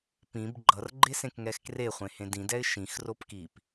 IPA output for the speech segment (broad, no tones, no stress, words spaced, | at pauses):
pĩb ɡ͡ǃʌrɡ͡ǃesẽkŋɛx kreχʷẽhẽ dĩdɛɪ̯ ʃĩxrop kip